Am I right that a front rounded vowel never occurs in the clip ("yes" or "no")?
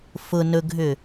no